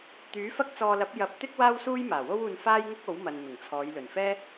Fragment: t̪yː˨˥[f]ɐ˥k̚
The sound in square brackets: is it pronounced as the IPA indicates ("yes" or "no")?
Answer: yes